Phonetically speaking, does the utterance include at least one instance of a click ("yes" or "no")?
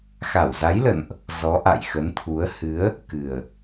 no